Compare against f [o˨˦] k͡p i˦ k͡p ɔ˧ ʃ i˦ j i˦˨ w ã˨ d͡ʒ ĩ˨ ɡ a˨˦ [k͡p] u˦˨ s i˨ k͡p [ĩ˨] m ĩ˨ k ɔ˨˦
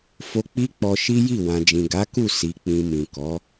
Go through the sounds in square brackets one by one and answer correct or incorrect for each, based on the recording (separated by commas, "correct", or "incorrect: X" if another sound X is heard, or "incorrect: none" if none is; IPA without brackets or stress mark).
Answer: incorrect: o˧, incorrect: k, correct